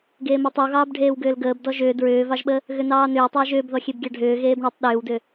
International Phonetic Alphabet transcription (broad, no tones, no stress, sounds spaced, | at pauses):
ɡ eː m ɔ tˤ ʏ w ɣ ɑː b ɖʱ eː w ɡ ʏː l ɡ əː b d ɔ ʒ ʏː d ɹ ʏː v ɑ ʒ ɓ ə | ɣ ʏ n ɑː n ʏː tˤ əː ʒ ʏː b ð ɔ xʲ e b ɡʲ ɑ ɖʱ ʏː ɣ eː b ɳ e tˤ ɗ ʏː w d ʏ